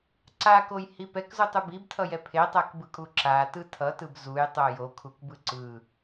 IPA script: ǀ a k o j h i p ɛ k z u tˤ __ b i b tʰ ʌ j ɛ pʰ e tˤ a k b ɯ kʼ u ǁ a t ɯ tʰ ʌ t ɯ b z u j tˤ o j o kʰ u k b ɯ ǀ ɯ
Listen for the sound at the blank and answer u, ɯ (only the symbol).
u